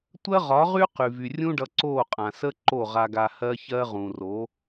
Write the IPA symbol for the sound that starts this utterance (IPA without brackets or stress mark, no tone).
tʷ